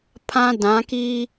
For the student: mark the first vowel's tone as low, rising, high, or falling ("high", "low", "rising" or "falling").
high